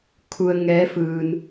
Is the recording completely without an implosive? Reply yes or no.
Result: yes